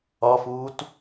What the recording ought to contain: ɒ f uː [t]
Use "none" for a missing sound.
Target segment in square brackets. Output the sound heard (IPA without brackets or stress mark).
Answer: t